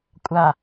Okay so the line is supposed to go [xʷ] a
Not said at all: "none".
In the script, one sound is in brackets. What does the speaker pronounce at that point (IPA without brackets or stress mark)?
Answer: kʷʼ